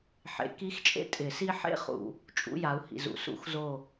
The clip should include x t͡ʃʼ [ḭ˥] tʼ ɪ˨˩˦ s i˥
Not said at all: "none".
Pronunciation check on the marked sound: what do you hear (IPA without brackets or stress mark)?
ḛ˥